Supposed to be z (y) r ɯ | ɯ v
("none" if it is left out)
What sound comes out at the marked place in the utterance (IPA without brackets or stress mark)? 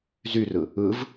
y